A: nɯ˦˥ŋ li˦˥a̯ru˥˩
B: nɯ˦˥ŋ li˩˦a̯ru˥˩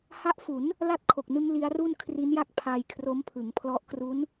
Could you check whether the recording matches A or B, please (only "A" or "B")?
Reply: A